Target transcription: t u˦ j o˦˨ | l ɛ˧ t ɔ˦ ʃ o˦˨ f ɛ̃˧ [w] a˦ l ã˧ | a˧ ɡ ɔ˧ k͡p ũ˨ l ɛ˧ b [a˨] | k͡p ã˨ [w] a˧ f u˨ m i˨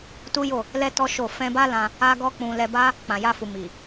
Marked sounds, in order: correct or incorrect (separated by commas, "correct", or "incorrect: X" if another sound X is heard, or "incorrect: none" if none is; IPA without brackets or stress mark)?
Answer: incorrect: b, incorrect: a˦, incorrect: j